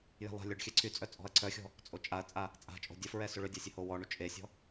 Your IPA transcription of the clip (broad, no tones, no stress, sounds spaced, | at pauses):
j ɛ̤ lˠ a̤ lʲ ɔ ɖ xʲ ɛ ǀʰ y t͡sʼ œ t͡sʼ ɔ̤ ɐ̯ ǀʰ œ xʲ ɔ̤ | t͡sʼ o t͡ʃʼ a ɐ̯ t͡sʼ a | t͡sʼ a̤ t͡ʃʼ o̤ dʲ ə f ɹ ɛ s ø ɭ ø dʲ a sʲ ə h o w ɔ ɳ u t͡ʃʼ e sʲ ɔ̤